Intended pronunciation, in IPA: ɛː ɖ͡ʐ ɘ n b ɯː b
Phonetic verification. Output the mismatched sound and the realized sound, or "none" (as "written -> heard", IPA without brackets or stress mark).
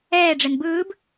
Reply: none